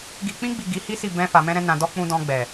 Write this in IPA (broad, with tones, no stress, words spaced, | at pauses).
ɡi˨k͡pĩ˧ɡ͡bi˨ ɡi˨˦hi˦si˦˨ bɛ̃˧ fa˨mɛ̃˧ɾɛ̃˧ nã˨dɔ˧ k͡pũ˧dɔ̃˧ ɡ͡bɛ˨